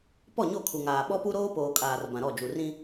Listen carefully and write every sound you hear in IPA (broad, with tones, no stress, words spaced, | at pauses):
pɔ˦˨ɲo˦˨kʰu˨ŋaː˨ ɓɔ˦pu˦ ɾoː˦poː˨ kʼaː˨rbã˨ ɾɔ˦˨ d͡ʒu˨rĩ˦